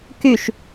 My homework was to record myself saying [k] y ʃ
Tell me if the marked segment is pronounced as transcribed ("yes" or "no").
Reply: yes